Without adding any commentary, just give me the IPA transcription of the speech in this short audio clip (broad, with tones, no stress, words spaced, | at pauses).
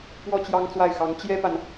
pwɔ˥˩t͡ɕjɑ˥ŋt͡swa˥˩ɪ̯xɑ˧˥ŋ t͡ɕjɛ˥pa˨n